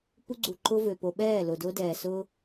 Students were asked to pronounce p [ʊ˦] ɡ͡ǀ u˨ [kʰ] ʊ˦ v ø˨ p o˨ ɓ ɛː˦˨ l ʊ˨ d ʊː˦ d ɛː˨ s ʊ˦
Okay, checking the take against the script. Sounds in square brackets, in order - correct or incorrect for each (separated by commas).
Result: incorrect, incorrect